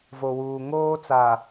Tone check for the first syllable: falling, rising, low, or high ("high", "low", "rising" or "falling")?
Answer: low